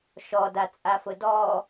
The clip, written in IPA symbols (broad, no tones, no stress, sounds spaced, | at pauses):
ʃ ɔ d a t͡sʼ a f ʊ d ɔ